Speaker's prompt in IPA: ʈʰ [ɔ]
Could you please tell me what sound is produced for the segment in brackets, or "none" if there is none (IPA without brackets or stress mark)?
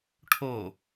o